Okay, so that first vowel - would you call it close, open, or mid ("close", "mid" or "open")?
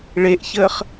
mid